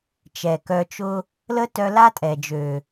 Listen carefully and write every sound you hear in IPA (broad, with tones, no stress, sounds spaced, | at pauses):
t͡ʃ ɛ˨ k œ˧ t͡ʃ ʊ˦ | l ə˦ t œ˧ l a˦ tʼ ɛ˨ d͡ʒ ø˨